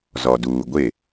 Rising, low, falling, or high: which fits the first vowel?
low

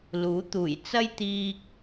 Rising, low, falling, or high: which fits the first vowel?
rising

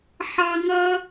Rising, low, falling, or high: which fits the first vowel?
high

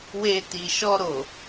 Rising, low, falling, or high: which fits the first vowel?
low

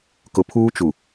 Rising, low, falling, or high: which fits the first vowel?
low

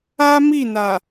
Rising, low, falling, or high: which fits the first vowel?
high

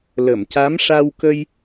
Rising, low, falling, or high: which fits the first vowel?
low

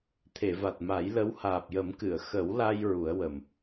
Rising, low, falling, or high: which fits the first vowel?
low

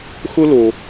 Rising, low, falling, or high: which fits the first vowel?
high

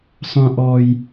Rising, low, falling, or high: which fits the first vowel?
high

